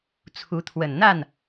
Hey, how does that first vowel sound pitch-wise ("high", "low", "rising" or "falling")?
rising